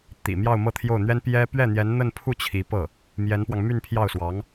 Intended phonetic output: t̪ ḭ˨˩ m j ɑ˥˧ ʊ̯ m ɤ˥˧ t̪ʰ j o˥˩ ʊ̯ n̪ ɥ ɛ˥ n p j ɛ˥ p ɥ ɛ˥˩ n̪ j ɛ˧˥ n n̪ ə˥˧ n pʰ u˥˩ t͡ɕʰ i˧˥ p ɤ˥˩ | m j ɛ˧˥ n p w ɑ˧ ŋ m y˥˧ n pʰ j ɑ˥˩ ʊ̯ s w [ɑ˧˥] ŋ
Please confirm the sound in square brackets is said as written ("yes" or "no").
yes